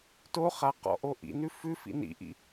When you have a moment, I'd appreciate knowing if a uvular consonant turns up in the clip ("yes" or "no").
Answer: yes